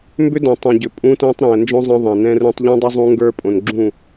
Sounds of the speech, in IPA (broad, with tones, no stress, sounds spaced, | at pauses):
m b ʏ˦ d õ˨ tˤ ũ˨ ɟ ʏ˨ pʼ ũ˧ t õ˧ tˤ ɾ ɛ̃˨ ə̯ n d͡ʒ õ˦ zˤ ɛ̃˧ ðˤ ɛ̃˨ n ɛ̃˧ r ũ˧ tˤ ʎ ɛ̃˦ dˤ ʏ˦ zˤ ũ˦ ŋ ɡ ə˞˦ pʼ õ˨ n ɡ͡ǁ ũ˦˨